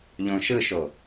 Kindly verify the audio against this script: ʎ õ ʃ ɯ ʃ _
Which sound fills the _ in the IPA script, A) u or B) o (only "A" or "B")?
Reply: B